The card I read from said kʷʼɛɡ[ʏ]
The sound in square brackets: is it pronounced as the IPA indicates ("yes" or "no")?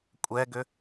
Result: yes